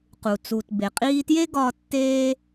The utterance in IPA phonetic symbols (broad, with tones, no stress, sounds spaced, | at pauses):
q u˩ t͡s u˩ t b e˩ qʼ iː˦ t j e˥ ɡ ɒː˦ tː eː˥